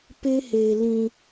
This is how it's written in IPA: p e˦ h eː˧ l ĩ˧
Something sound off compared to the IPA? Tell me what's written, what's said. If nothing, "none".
none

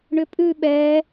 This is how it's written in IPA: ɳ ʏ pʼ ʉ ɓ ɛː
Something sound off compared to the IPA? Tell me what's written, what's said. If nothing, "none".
none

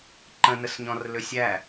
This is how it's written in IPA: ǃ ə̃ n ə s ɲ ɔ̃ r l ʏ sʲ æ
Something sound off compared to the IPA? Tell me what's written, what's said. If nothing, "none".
none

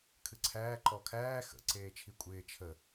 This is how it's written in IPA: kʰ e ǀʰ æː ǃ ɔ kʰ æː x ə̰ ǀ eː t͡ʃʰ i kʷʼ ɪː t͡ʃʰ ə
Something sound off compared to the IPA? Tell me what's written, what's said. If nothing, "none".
e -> ɨ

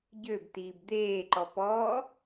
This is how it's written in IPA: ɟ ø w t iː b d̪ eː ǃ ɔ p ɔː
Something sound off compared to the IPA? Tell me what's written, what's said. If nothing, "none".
w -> b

